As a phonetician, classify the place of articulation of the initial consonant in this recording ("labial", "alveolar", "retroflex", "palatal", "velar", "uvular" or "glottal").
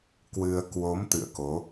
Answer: velar